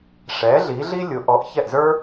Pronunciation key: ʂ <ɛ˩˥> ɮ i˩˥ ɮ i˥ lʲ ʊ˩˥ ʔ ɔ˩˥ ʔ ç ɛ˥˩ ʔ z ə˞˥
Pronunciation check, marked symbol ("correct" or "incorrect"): correct